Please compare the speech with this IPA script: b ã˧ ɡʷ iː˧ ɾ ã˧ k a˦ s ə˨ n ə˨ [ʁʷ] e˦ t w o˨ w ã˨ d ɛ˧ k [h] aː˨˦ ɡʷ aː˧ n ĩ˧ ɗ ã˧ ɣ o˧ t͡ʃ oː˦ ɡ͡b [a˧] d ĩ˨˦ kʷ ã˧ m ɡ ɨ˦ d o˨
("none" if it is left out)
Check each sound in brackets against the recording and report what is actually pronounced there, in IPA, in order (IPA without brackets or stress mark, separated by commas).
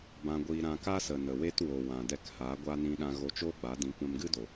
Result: w, h, a˨˦